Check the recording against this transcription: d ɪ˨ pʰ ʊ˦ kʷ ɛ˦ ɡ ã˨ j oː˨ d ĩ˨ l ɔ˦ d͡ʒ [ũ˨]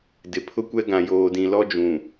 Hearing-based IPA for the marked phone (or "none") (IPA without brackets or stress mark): ũ˨